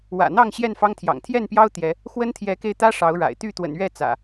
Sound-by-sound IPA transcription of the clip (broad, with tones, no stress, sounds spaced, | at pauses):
w ä̰˨˩ n̪ ɑ˥˨ ŋ ɕ j ɛ˥˨ n f ɑ˦ ŋ t̪ʰ j ɑ̰˨˩ ŋ t̪ʰ j ɛ˥˨ n p j ɑ˦ ʊ̯ t̪ j ɛ˨˦ | x w ə˦ n t̪ʰ j ɛ˨˦ k e˧ ɪ̯ t̪ ä˦ ʂ ɑ˨˦ ʊ̯ ɻ a̰˨˩ ɪ̯ t̪ y˥˨ t̪ w ə̰˨˩ n ɥ ɛ˥˨ t͡s ä̰˨˩